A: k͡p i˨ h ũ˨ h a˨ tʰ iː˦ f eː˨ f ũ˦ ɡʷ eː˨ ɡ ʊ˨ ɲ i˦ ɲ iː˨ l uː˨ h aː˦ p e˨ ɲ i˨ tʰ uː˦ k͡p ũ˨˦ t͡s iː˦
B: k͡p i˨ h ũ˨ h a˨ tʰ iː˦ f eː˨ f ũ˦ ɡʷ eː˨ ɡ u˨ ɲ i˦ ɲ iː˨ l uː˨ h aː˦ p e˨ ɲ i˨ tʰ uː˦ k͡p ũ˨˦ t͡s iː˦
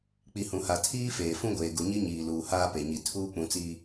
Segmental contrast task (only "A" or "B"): B